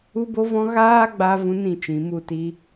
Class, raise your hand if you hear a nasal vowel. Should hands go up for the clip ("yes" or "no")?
yes